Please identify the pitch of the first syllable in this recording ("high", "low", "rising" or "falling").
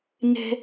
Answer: high